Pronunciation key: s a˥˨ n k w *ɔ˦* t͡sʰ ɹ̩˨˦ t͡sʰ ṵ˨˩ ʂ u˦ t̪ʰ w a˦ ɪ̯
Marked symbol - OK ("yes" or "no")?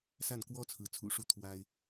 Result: yes